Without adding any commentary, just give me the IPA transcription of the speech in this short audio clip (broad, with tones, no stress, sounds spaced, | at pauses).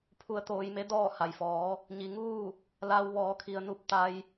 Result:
pʰ u˧ ə̯ t̪ oː˧ j m e˧˥ d ɔː˥˨ h a˩ j f ɔː˩˧ | ɲ i˩ ŋ uː˥˨ | l a˧ w ʋ ɔː˩˧ kʰ i˩ ə̯ n u˧˥ p̚ t̪ a˧ j